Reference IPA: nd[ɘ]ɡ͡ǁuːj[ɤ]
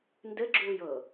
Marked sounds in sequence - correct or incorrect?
correct, correct

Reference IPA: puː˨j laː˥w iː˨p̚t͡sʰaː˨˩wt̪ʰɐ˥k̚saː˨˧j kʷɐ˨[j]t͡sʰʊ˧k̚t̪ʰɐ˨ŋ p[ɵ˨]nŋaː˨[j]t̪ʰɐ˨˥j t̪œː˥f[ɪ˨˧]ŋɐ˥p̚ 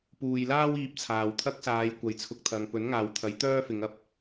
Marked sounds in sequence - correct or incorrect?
correct, incorrect: ɵ˨˥, incorrect: w, correct

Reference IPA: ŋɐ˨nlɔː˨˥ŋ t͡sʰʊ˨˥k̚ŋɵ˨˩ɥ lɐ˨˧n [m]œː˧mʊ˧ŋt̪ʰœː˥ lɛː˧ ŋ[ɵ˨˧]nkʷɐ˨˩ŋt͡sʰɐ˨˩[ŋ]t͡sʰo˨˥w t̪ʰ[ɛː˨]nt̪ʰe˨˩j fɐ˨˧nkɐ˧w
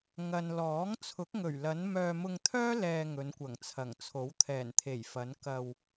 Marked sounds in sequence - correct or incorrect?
correct, correct, correct, incorrect: ɛː˨˩

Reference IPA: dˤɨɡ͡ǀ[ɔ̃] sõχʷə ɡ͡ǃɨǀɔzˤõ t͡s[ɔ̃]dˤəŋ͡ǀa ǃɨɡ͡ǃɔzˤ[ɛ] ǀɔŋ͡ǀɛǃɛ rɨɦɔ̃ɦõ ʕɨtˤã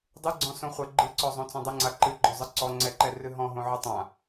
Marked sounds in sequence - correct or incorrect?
correct, incorrect: õ, incorrect: ɨ

